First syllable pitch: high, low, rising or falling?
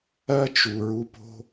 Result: high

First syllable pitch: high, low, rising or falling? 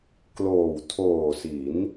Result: low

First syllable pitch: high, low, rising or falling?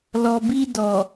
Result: low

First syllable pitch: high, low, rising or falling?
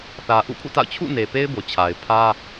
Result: low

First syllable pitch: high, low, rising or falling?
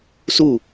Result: falling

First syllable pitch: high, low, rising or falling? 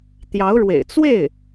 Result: rising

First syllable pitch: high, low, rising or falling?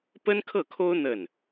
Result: high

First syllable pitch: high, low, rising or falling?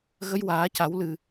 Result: rising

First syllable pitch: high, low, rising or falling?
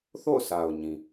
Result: falling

